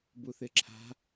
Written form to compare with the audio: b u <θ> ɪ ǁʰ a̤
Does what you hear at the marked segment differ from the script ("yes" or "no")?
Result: no